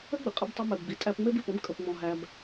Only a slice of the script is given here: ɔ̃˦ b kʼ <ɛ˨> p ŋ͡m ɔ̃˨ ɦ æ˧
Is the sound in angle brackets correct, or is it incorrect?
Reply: incorrect